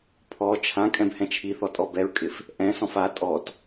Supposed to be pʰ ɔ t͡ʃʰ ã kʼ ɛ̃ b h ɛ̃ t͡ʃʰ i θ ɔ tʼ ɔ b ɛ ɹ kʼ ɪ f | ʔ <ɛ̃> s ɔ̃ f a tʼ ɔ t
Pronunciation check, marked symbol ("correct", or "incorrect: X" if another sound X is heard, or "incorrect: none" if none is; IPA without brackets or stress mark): correct